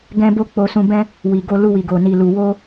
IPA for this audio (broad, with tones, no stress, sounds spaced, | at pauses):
ɡ ɛ̃˦ b o˦ k͡p o˧ s ũ˧ b ɛ̃˦ | w i˨ ɡ o˧ l u˧ w i˨ ɡ o˨ n i˨ l u˨ w o˧